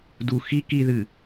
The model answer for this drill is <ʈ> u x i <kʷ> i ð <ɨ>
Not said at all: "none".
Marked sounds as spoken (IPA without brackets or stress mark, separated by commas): d, k, ɨ